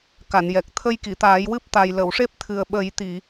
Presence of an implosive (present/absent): present